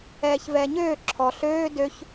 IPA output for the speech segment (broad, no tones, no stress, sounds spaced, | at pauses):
ɛː ç v ɛː ɲ øː ǁʰ ɔ ɬ øː d ø ç